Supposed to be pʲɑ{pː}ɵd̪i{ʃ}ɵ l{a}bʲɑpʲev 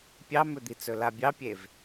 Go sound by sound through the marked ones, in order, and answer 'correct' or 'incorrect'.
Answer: incorrect: m, incorrect: t͡s, correct

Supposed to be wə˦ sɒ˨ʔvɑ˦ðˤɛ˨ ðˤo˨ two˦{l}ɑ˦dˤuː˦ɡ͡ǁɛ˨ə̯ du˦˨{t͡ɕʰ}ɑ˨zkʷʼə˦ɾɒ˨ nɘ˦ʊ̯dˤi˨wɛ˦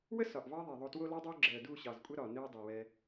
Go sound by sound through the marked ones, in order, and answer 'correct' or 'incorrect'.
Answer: correct, incorrect: ɕ

